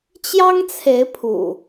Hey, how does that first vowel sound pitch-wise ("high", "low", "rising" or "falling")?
high